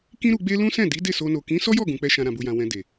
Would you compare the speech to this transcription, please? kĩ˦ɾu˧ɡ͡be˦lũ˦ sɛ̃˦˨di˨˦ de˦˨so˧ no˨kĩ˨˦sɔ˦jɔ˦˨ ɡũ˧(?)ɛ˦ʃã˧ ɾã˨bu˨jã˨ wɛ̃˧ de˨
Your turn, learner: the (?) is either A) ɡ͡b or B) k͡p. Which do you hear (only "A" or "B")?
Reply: B